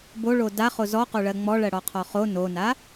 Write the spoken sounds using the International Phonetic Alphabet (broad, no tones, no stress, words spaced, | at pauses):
boɭo daχo zɔqoɭɜ ŋ͡mɔɭɜɽɔqʰɔ χo nona